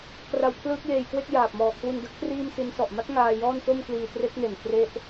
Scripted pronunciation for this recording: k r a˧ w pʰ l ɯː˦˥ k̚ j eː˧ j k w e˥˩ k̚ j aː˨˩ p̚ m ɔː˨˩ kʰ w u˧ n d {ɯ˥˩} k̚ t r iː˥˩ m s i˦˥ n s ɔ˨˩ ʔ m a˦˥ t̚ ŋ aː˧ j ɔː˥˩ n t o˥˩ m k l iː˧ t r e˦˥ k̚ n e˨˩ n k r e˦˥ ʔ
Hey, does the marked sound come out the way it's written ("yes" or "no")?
no